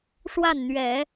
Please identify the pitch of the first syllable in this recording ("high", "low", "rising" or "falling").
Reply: falling